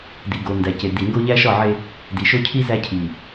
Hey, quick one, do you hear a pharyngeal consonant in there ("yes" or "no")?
yes